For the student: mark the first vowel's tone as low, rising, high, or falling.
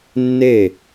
falling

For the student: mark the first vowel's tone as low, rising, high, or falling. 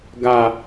high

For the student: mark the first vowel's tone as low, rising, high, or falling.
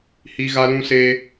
high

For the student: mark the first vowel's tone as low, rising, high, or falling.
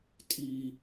high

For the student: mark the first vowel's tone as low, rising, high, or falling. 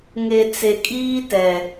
low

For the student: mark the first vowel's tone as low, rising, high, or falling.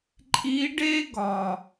rising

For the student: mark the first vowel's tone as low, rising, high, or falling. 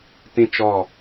high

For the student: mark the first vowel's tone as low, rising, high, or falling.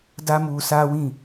high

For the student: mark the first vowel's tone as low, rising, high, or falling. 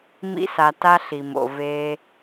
high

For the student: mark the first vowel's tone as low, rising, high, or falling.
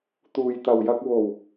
low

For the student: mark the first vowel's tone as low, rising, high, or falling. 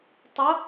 rising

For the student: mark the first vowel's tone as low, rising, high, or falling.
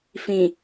low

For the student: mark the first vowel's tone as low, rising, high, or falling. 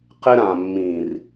high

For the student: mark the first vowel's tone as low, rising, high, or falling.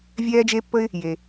high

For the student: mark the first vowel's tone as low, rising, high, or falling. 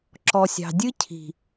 low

